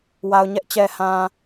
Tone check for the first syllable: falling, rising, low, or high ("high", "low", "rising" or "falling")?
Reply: low